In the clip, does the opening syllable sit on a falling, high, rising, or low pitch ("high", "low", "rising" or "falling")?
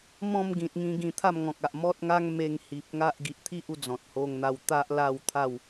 falling